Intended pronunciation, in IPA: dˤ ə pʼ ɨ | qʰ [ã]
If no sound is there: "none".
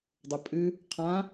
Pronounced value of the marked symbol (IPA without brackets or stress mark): ã